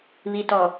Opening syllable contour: low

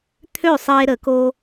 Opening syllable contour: falling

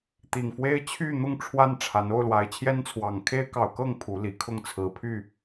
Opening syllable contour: low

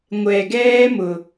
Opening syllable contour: low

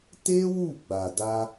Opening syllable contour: high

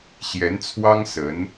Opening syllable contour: rising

